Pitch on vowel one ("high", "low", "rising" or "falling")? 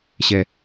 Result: high